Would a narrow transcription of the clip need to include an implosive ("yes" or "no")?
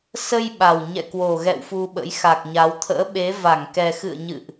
yes